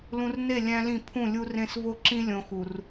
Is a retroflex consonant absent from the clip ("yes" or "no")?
yes